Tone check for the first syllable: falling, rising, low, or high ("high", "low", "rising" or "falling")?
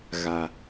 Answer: low